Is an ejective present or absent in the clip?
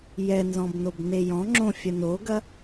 absent